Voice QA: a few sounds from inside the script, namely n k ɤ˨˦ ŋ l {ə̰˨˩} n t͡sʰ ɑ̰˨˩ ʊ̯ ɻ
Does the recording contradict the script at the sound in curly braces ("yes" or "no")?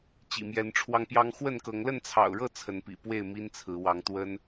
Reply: yes